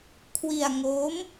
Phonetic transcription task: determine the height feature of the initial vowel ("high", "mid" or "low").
high